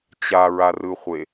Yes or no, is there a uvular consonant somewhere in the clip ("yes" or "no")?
yes